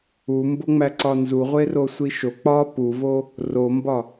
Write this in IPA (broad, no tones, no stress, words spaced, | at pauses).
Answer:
umboŋ͡mæ ǀɒnzuʁʷe rosʷiʃo k͡pɒ puvo | rombɒ